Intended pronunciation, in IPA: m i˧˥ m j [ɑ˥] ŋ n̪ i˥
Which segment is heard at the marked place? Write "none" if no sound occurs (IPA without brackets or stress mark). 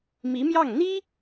ɑ˥˩